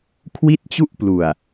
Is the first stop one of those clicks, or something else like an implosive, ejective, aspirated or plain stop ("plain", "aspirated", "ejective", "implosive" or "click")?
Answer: aspirated